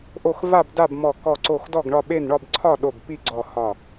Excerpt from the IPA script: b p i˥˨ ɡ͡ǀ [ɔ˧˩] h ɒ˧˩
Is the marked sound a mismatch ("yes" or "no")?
no